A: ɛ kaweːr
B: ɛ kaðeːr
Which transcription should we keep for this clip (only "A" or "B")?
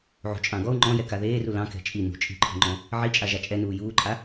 B